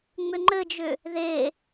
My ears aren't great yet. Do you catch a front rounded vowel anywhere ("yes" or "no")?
yes